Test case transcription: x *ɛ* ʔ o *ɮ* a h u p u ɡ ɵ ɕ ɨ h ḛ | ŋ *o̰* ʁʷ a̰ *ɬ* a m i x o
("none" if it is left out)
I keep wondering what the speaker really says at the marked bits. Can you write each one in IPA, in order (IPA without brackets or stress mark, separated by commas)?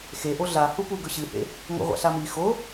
e, ɮ, o̰, ɬ